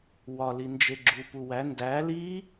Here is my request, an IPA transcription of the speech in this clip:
w ɒ l i n d͡ʒ e ɡ͡ǁ u p u w æ n d æ l i

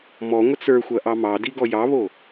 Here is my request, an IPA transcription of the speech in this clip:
m ɔ ŋʷ ə t͡s ə˞ xʷ ɐ ʔ ɑ m ɑ d i ɡ ɔ j ɑ β o

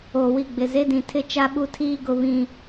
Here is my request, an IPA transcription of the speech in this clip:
oː˨ w i˦˨ ɡ͡b ɪ˨ z e˦ d ĩ˨ tʰ ɪ˦ t͡ʃ a˦ ɓ u˦ tʰ iː˦ ɡ ʊ˨ β ĩ˨

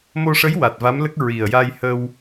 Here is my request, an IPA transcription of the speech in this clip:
m o˧ ʂ ə˧˥ j w a˨˩ t̚ v a˧˥ m l ə˦˥ k̚ ɹ i˨˩ ə̯ j a˧ j h ə˧ w

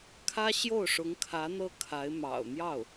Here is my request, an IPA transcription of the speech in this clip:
kʰ ä˥ ɕ j o˥˩ ʊ̯ ʂ ʊ˧˥ ŋ kʰ ä˧˥ n̪ ɤ˥ kʰ a˧˥ ɪ̯ m ɑ̰˨˩ ʊ̯ n̪ j ɑ˥˩ ʊ̯

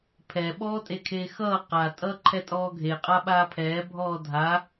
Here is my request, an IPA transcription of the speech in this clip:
pʰ ɛ ɓ ɔː tʼ e kʰ eː x ʌː q a tʼ ʌː ǃʰ ɛ tʼ ɔː ɡʱ e qʼ a ɓ aː pʰ ɛː bʱ ɔː dʱ a

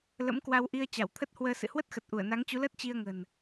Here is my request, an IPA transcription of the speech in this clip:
l ə̰˧˥ m k w a˧ w ʔ i˧ ə̯ t͡ɕ a˧˩ w t̪ʰ ə˦˥ t̚ h w əː˧ s ɨ̰˧˨ h w ə˦˥ t̚ x ə˨˩ t̚ ʔ u˧˩ ə̯ n a˨˦ ŋ t͡ɕ u˨˦ l əː˦˥ t̚ t͡ɕ i˧ ə̯ ŋ ə̤˨˩ n

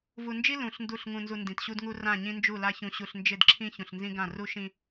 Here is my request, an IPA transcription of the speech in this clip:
v u˨ n d͡ʒ i˦ l ũ˨ ɬ n d u˦˨ ɬ ŋ ũ˨ n z u˨ n d ĩ˨ t ɕ u˦ d ŋ u˦ r ã˦˨ ɲ ĩ˦ n d͡ʒ u˦˨ l a˦ ç ũ˨ ɕ u˨ ɬ n d͡ʒ ɪ˦˨ d ǁʰ ĩ˦ ç ũ˨ ɬ n z ĩ˦ ɡ ã˦˨ r u˦ ʃ ĩ˦

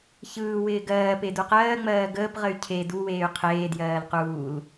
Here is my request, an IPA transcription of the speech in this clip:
ç ɯː w ɪː ɡ ɜː p e d u q ɜː ŋ͡m ɜː ɡ əː p ʁ ə y̯ cʰ e d u w eː y̯ qʰ eː d j ɜː l q uː l

